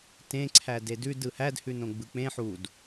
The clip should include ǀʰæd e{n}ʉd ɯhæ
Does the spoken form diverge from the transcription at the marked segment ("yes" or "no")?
yes